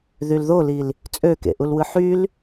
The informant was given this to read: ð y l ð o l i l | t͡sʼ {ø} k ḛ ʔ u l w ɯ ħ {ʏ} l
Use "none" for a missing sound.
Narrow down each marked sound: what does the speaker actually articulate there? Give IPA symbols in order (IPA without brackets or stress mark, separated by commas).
ø, y